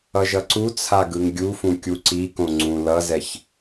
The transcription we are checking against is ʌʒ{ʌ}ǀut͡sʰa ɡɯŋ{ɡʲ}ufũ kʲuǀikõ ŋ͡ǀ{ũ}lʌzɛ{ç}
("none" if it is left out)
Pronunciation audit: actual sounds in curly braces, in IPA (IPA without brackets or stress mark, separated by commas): ʌ, ɡʲ, ũ, ç